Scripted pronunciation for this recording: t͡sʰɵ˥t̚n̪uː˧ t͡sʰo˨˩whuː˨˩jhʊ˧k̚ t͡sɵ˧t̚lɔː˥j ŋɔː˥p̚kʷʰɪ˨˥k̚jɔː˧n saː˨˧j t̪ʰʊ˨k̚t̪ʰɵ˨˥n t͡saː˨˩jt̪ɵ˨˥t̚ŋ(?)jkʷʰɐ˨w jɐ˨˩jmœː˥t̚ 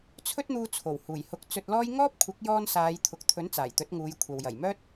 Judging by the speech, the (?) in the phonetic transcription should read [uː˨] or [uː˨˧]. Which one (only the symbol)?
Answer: uː˨˧